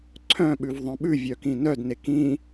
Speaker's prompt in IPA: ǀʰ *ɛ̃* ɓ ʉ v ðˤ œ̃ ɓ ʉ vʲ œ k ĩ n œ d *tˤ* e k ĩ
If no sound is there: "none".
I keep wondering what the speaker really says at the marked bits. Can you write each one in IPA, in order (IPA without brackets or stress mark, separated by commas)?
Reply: œ̃, n